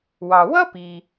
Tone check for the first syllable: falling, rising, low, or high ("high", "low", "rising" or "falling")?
low